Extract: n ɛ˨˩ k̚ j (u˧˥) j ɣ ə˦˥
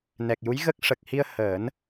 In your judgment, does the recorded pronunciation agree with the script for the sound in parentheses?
yes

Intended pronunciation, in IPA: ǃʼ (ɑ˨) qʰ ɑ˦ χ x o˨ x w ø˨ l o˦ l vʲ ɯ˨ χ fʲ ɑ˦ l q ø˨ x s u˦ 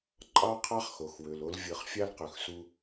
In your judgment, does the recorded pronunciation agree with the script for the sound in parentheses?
no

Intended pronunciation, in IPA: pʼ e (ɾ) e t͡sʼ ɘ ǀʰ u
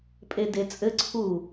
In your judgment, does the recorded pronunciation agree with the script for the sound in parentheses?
no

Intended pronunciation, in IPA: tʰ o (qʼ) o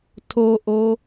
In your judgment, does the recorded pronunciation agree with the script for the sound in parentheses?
no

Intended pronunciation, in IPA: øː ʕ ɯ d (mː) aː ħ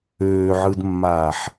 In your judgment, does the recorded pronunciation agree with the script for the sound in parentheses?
yes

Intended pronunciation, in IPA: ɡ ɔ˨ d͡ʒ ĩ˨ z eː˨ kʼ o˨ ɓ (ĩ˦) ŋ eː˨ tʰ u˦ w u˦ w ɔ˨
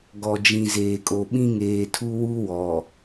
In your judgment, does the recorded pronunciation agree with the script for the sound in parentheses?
yes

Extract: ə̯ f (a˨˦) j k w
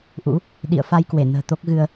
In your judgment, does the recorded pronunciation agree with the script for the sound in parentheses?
no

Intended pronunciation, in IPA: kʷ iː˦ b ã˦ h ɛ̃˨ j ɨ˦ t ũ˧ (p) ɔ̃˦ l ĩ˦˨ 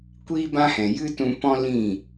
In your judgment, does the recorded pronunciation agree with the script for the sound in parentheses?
yes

